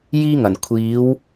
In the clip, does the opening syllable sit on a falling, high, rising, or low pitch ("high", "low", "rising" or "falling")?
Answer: high